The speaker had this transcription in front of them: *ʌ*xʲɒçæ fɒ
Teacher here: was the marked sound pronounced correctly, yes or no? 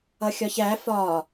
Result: yes